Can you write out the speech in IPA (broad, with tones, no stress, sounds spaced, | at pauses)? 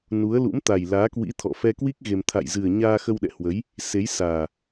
n u˨˦ ə̯ l ṵ˧˥ m t̪ a˨˩ j l aː˨˦ k w ḭ˧˥ t̪ʰ ɔ̰˧˨ f ɛ˧ k w i˦˥ k̚ ɣ e˧ m t̪ʰ a̰˧˨ j z ɨ˨˩ ə̯ ɲ aː˧ x ə˧ w ɗ ɛ̰˧˨ h w ə˨˦ j | s e˨˦ j s aː˨˩